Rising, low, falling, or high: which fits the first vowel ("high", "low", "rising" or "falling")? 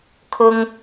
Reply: high